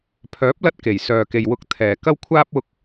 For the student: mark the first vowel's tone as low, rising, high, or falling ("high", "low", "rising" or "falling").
rising